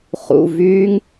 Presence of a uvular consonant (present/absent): present